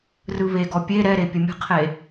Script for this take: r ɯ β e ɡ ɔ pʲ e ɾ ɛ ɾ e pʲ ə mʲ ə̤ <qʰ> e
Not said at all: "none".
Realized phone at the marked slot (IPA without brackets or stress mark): qʰ